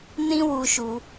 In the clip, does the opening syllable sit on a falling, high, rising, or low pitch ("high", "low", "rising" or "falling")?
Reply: high